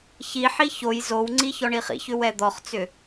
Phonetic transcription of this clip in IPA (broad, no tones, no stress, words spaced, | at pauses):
çiħi çoj zowŋ͡ǀi çɔɳiχḭçʏ wɛd̪ɔχt͡sʏ